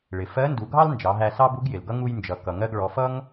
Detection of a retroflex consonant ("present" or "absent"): present